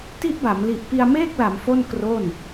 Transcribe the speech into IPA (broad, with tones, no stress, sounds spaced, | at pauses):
t i˦˥ ʔ b a˩˦ m l i˨˩ ʔ p i˧ a̯ m eː˥˩ k̚ l a˩˦ m f o˥˩ n k r o˥˩ n